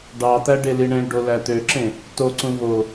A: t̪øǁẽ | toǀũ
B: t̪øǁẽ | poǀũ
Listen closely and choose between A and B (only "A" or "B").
A